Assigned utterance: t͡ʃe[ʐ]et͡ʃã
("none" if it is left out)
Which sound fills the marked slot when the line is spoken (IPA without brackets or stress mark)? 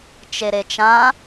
ɾ